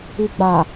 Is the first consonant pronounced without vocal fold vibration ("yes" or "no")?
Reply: no